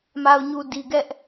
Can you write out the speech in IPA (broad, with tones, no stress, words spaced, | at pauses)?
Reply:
ma˨ʊ̯ɲu˨ di˨ɡɛ˦ʔ